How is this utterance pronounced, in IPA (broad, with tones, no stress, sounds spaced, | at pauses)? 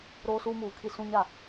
ɾ oː˦ s uː˦ m uː˨ kʰ i˦ s ũ˦ ɲ a˦˨